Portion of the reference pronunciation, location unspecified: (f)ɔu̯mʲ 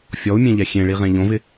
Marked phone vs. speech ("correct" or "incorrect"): incorrect